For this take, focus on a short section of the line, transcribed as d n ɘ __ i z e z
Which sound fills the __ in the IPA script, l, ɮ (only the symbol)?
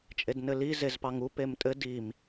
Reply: l